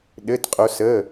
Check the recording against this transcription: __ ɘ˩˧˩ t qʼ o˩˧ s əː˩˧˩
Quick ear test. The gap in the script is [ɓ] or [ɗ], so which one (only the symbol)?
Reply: ɗ